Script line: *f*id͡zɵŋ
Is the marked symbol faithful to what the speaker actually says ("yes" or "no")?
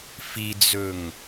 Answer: yes